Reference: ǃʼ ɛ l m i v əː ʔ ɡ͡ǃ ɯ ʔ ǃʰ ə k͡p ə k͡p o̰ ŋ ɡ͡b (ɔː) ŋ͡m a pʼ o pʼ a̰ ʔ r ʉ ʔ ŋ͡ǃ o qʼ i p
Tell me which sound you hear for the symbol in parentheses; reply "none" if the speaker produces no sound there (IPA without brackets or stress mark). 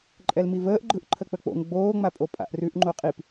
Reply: oː